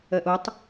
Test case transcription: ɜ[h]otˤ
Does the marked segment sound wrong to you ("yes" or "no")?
yes